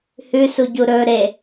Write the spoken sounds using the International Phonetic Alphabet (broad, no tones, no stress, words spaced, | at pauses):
hʉsuɟu ɾɵ ɾe